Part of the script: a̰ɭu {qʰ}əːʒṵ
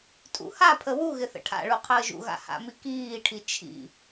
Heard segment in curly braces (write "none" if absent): qʰ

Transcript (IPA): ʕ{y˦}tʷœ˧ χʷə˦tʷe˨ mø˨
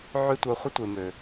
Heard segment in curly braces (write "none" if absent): y˦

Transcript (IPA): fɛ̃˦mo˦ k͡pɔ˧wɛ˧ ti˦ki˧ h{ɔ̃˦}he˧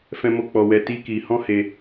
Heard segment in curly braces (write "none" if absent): ɔ̃˦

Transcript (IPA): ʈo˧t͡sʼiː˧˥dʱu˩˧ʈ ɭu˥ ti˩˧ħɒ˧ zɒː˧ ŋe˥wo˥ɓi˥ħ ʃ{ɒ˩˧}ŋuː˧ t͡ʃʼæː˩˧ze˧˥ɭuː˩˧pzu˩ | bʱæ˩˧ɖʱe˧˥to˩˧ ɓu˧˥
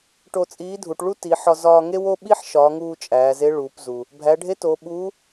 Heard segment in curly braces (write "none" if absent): ɒ˩˧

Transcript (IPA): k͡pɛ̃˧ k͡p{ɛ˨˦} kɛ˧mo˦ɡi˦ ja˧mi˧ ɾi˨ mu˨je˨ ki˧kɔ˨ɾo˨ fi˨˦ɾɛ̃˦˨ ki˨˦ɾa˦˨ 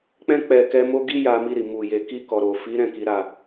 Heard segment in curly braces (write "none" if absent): ɛ˨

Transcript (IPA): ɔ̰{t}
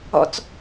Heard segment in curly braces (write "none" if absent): t͡s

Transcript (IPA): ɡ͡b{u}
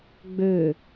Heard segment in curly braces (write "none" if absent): ø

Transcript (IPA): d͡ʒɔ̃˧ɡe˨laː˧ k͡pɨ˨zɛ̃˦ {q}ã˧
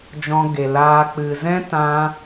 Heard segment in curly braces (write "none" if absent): t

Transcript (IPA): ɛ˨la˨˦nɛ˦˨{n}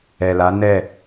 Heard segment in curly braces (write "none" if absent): none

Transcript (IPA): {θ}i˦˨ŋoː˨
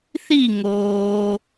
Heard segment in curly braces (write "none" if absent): θ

